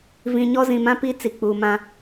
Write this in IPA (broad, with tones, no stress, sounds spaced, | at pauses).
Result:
v ĩ˨ ɲ ɔ˦ z ĩ˨ m ã˦ p i˦ t͡s i˨ k͡p uː˨ m ã˦